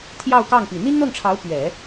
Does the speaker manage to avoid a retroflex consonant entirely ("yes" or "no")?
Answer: no